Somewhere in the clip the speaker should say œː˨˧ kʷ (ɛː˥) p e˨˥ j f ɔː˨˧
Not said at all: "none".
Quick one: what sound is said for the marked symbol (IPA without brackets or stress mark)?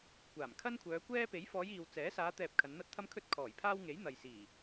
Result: ɛː˥